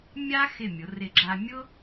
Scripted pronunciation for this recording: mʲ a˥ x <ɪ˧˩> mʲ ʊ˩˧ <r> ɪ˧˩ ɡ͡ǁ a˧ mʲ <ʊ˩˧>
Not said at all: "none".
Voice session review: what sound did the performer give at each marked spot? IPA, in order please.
ɪ˧˩, r, ʊ˥

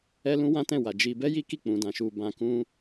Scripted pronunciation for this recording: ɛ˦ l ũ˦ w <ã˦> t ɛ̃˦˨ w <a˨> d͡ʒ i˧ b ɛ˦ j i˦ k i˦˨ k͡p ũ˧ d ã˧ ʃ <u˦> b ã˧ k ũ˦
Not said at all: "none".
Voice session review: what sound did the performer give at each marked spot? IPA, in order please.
ã˦, a˨, u˧

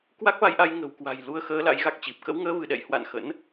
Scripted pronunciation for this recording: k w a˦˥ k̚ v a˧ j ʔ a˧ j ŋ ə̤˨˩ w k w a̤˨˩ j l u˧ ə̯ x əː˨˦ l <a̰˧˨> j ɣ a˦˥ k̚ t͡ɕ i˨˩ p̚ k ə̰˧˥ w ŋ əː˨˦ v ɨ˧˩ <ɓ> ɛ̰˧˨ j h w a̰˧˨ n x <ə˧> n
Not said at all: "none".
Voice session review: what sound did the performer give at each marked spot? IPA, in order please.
a̰˧˥, ɗ, ə̰˧˥

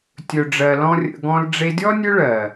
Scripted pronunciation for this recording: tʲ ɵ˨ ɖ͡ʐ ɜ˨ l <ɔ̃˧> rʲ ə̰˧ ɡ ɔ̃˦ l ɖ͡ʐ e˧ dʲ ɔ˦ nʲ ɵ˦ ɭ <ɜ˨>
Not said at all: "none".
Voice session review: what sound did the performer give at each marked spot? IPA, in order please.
ɔ̃˦, ɜ˨

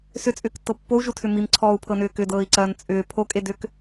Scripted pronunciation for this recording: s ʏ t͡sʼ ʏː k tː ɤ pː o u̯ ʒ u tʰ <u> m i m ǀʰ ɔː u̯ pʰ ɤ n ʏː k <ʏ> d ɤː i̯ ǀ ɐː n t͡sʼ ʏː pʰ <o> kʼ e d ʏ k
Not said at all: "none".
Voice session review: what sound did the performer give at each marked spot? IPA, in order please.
ʏ, ʏ, o

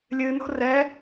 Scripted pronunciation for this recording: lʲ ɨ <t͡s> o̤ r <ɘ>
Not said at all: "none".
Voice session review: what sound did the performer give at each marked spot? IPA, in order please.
n, ɛ

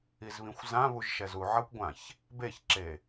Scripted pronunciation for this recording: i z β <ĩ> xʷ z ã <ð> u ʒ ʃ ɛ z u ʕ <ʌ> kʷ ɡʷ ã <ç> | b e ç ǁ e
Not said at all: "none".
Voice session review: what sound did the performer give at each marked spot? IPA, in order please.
ĩ, β, ʌ, ç

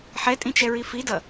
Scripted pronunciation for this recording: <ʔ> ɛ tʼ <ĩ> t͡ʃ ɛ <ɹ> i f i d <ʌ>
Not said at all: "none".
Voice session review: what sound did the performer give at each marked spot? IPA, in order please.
ħ, ĩ, ɹ, ʌ

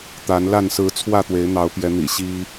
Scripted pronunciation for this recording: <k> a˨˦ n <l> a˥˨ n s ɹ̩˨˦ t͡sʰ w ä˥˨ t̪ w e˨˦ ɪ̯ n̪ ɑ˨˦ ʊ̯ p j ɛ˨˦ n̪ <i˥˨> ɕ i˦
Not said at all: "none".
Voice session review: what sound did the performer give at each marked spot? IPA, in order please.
t̪, l, ḭ˨˩

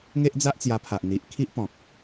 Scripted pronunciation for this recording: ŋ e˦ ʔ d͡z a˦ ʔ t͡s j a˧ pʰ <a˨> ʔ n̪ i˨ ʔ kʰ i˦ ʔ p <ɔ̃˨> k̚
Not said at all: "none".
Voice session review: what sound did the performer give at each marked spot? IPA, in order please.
a˨, ɔ̃˨

